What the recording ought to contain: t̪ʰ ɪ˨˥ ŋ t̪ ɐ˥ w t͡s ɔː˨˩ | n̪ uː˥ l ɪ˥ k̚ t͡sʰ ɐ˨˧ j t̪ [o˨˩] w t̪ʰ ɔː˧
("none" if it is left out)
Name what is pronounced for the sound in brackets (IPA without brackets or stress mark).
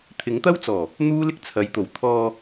o˨˩